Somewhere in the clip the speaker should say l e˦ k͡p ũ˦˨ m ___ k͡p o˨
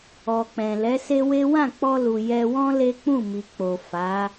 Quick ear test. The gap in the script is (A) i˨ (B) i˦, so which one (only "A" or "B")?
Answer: A